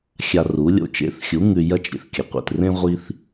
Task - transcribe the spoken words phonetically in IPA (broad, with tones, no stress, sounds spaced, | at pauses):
xʲ a˧ r u˨˦ lʲ o̰˧ t͡ʃ ḛ˨˦ θ xʲ u˨˦ ŋ ʉ˧ j ɐ˦ t͡ʃ ɾʲ ḛ˨ θ kʲ ɐ˨ qʷ ḛ˨ t r ẽ˦ ʁʷ i˦ θ